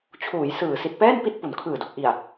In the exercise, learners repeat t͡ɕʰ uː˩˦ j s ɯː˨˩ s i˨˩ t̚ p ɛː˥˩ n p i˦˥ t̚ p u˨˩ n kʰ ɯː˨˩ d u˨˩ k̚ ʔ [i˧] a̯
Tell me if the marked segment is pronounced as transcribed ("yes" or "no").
no